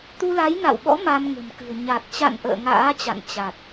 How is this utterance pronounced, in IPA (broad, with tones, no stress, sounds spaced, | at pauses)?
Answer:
t̪ u˧ l a˨˦ j n a̰˧˨ w ɓ ɔ̰˧˥ m a˧ m ŋ ə̤˨˩ m k ɨ̤˨˩ ə̯ ɲ a˨˩ t̚ t͡ɕ a̰˧˨ n ʔ ə̰ː˧˨ ŋ a̰ː˧˥ t͡ɕ a̰˧˨ n t͡ɕ a˨˩ t̚